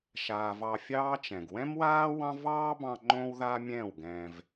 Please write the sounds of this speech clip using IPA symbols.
ʃ aː˨ v ɑ˧ fʲ ɑː˦ t͡ʃ ɛ̃˨ ɡ w ɛ̃˦ m w aː˦ w ɑ̃˦ v ɑː˦ b ɑ̃˧ ŋ͡ǃ õ˦ w ð a˦ mʲ ɛ̃ː˦˨ w ɡ ɛ̃ː˧ v

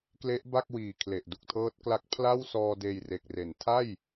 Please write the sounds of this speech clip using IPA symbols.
k l e˦˥ ʔ b a˥˩ k̚ w iː˨˩ kʰ l e˨˩ ʔ d u˨˩ k̚ tʰ ɤː˦˥ t̚ k l a˦˥ k̚ pʰ l a˥˩ w s ɔː˧ d eː˧ j r e˨˩ k̚ r e˩˦ n tʰ a˥˩ j

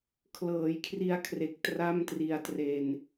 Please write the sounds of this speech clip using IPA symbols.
kʰ l ɤː˩˦ j kʰ r i˧ a̯ kʰ r e˨˩ k̚ t r a˥˩ m t r i˧ a̯ t r e˧ n

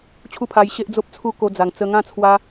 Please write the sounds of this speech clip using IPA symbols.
t͡ɕʰ u˦ pʰ a˧ j ɕ e˦ ʔ d͡z o˦ p̚ t͡sʰ u˦ k o˧ d͡z a˨˩ ŋ t͡s ə˧ ŋ ã˥˧ t͡sʰ w a˧

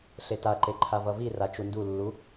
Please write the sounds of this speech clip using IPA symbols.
ɬ e t a ǃ e ǃʰ a v ʌ v i r a t͡ʃ u n d u lː u

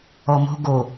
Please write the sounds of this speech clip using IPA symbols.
ɔ m o̤ ɡ o

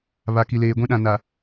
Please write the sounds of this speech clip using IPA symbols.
β a˨ k i˨ l eː˨ ɡʷ ĩ˦ ɗ ã˨ n a˨

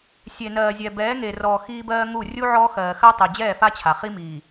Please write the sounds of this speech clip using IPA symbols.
sʲ e˨ n ɜː˨ zʲ ɛ˨ b ɛː˨˦ ŋ e˨ r ɔː˨ x iː˦ b ɜː˦ ŋ u˦˨ rʲ u˦ ʕ ɔː˦ x ɜː˨ x ɜ˦ tˤ ʏː˨ d͡ʑ ɛː˦˨ f a˦ t͡ɕʰ a˨ χ i˦ m iː˨

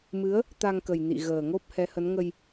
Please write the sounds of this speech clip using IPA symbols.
m ɨ˨˦ ə̯ | t̪ a˧ ŋ k ə˨˩ j n ḭ˧˨ ɣ əː˨˩ ŋ o˦˥ p̚ h ɛ˨˦ h ə˨˦ n ŋ ə˧ j

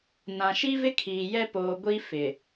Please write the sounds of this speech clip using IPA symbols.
n ã˨ ʃ i˦ v ɪ˦ kʰ iː˨ j ɛ˦ p oː˨ ɡʷ i˦ f ɪ˨

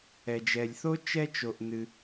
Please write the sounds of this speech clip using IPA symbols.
ɛ˩ d͡ʒ ɛ˩ lʲ θ o˥ t͡ʃ ɛ˥ t͡ʃ o˩ ʔ n ɨ˩

